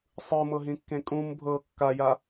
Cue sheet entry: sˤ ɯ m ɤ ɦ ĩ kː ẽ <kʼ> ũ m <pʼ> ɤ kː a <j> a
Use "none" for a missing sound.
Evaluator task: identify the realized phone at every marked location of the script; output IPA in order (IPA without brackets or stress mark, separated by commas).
kʼ, bʱ, j